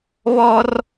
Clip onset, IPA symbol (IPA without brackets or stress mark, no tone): β